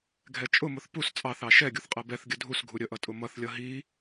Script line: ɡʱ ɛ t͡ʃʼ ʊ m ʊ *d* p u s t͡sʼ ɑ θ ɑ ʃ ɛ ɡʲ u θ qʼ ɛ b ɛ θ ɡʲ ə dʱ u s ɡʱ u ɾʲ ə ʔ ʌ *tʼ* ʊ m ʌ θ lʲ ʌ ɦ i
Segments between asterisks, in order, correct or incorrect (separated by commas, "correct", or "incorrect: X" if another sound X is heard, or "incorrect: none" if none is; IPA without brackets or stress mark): incorrect: θ, correct